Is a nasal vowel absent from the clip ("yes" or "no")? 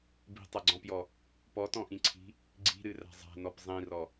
no